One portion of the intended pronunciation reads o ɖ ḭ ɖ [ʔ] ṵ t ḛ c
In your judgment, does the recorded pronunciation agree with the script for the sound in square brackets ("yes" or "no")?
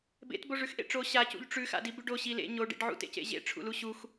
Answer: no